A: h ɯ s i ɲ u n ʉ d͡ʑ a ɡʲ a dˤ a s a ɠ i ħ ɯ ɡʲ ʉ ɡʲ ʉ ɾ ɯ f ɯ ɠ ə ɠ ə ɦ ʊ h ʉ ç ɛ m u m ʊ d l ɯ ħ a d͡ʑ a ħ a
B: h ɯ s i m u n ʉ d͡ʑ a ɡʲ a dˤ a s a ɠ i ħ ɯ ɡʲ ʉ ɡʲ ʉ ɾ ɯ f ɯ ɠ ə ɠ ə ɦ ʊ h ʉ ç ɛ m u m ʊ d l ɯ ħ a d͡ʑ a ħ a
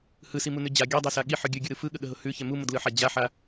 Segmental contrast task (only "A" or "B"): B